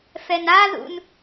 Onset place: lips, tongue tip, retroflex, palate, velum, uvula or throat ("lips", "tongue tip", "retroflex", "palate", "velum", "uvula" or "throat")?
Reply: lips